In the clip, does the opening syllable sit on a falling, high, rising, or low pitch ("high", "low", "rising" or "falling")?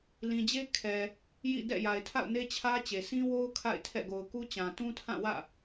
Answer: low